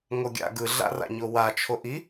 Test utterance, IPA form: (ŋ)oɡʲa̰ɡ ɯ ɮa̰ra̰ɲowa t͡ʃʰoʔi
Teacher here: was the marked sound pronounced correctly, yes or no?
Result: yes